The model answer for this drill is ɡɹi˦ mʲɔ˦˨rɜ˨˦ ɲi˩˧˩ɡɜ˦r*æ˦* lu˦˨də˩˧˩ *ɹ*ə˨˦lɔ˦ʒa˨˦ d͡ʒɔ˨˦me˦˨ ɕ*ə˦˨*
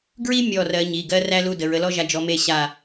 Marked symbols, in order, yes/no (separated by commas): yes, yes, no